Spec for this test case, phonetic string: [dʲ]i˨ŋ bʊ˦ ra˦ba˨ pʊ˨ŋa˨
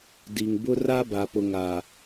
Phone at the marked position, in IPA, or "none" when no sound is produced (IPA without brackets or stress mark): d